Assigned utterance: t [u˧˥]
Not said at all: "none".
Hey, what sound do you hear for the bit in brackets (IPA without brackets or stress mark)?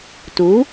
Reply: u˩˥